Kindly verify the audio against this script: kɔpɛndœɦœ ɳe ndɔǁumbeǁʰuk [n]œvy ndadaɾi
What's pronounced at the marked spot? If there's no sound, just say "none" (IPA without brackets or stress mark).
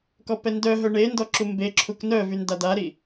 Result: n